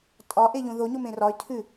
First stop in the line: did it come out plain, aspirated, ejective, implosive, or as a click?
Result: ejective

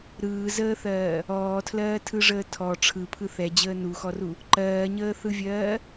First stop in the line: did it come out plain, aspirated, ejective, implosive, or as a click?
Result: aspirated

